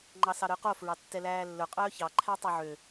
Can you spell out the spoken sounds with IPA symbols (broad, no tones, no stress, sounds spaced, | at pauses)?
ŋ͡ǃ ɑ s ɑ ɾ œ q o f ɹ ɑ tː ɛ l æː lː ɵ qʼ œː ç ɑ ǃʰ æ tˤ ø ʕ ø